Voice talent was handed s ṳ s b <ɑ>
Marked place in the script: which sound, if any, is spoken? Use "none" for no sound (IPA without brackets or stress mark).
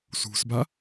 a